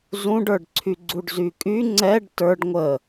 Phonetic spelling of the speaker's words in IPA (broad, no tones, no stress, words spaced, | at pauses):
zũɖə˞ɖǀʰy ɡ͡ǀuɖzykʼy ŋ͡ǀɛɖ tə˞ɖ ŋʷə